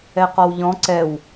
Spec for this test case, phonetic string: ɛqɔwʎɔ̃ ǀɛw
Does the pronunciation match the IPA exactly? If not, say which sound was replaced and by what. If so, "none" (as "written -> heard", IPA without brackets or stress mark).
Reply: none